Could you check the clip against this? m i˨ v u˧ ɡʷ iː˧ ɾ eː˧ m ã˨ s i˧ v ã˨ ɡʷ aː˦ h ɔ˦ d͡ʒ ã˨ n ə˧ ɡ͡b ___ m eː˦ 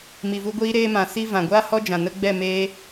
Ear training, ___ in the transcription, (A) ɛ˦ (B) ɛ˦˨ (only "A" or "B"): B